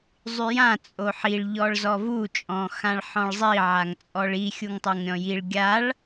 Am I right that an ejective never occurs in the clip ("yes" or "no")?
no